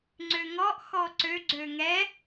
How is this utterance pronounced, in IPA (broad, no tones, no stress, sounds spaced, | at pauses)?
ŋ͡ǀ ø ŋ ɔ ʔ x ɔ ǀ ø ɡ͡ǀ ø ŋ ɛ